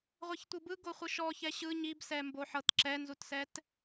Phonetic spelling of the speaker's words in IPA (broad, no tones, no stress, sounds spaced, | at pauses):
ʁʷ e ç tʷ ɯ b ɯ ɡ o χʷ ɯ ʃ ɔ ç ɛ ɕ ɯ ɲ i b s ɛ m b o ħ ɤ t ǁ ɛ n z u t s ɛ t